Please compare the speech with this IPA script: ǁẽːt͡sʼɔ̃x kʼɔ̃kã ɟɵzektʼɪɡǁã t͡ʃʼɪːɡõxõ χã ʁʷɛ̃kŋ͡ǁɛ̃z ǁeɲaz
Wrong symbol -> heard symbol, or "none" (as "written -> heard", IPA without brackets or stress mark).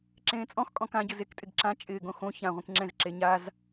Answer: χ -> ç